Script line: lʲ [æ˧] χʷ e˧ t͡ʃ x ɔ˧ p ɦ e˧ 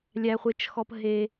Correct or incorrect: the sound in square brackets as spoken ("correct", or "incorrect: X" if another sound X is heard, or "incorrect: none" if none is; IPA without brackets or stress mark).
correct